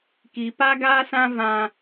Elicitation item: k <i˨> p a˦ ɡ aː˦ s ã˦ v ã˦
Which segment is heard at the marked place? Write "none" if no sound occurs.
i˨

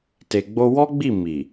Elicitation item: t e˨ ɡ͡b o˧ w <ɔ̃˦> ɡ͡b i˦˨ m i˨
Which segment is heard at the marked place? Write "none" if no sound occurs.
ɔ˦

